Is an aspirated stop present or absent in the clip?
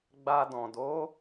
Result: absent